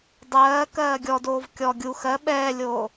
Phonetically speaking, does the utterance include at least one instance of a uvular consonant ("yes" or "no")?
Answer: no